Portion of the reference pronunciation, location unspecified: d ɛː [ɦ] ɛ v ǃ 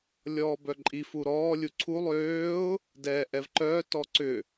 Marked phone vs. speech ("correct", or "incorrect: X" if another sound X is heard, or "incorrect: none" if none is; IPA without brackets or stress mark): incorrect: ʔ